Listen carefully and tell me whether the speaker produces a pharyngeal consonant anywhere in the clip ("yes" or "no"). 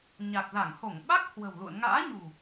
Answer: no